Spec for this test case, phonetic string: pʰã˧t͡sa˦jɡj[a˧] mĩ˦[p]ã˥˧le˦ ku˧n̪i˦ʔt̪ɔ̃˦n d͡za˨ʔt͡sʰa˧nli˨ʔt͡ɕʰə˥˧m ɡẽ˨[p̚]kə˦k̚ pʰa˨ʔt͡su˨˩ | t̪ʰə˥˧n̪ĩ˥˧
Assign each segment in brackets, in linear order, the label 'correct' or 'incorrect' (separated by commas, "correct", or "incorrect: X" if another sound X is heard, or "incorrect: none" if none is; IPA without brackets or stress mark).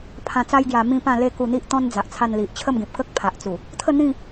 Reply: correct, correct, correct